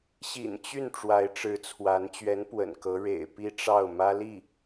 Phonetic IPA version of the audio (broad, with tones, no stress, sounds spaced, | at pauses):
ɕ ḭ˨˩ n t͡ɕ y˥˩ n ʈ͡ʂ w a˧˥ ɪ̯ ʈ͡ʂ ɻ̩˧˥ t͡sʰ w a˧˥ n t͡ɕ ɥ ɛ˧˥ n p w ə̰˨˩ n k ɤ˧˥ ɻ ḛ˨˩ ɪ̯ p i˥˧ ʈ͡ʂ ɑ˥˩ ʊ̯ m ä˥ l i˥˩